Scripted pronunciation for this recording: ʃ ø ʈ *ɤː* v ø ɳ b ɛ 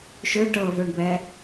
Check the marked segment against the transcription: correct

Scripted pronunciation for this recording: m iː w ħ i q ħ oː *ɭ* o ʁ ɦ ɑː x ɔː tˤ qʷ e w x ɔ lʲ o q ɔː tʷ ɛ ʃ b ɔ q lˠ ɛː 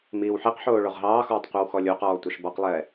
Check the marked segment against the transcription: correct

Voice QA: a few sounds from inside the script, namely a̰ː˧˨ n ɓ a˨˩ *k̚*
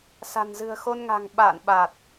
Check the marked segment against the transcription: incorrect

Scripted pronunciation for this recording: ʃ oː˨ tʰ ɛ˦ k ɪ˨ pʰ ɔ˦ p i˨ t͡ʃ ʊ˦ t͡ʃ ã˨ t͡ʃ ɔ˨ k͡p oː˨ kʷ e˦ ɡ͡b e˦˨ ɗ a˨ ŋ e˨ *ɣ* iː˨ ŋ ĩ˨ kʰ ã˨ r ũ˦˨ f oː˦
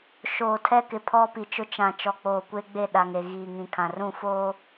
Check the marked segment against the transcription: correct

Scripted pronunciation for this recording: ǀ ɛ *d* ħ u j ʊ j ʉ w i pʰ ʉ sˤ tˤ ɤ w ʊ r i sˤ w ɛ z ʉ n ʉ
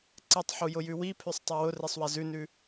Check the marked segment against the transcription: incorrect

